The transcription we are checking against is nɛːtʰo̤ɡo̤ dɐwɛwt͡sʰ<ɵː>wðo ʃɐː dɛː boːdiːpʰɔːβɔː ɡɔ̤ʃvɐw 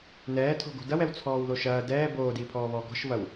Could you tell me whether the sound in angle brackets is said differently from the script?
yes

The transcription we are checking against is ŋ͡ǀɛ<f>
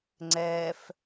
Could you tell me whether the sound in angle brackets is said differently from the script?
no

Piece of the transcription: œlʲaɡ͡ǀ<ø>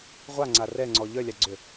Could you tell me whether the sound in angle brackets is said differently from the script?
no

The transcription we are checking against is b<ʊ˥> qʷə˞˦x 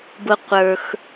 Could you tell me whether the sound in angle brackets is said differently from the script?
no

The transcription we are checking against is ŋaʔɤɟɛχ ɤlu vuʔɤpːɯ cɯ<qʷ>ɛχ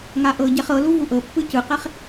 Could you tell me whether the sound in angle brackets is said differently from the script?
yes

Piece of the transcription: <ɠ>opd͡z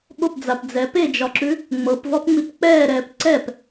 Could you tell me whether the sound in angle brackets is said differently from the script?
no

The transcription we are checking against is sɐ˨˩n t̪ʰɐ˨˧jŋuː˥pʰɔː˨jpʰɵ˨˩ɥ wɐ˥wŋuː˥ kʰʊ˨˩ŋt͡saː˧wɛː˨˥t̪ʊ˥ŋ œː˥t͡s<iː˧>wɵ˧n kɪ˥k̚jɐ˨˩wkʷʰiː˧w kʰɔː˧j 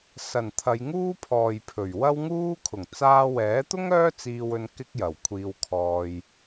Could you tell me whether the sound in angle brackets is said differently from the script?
no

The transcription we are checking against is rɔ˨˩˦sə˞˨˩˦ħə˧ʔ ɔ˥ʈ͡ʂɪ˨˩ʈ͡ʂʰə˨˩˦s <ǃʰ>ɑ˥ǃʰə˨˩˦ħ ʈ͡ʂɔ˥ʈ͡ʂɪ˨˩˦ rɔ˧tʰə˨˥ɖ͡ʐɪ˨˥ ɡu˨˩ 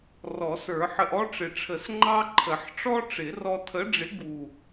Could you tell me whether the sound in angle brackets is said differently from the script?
yes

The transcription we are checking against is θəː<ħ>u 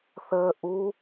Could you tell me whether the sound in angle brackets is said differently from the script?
yes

